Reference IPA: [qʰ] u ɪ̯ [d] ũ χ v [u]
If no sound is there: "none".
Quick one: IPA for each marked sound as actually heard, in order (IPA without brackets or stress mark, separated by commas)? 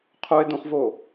qʰ, d, o